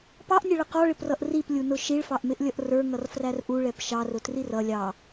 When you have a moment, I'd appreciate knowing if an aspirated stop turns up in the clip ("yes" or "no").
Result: no